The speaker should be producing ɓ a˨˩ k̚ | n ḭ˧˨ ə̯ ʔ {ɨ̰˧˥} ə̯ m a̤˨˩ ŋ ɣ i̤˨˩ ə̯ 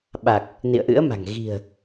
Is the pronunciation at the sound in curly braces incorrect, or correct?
correct